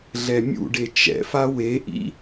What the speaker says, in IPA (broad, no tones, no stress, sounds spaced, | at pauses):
ɮ ɛ mʲ ṵ ɖ e t͡ʃ ɛ̰ f a w e ʔ ḭ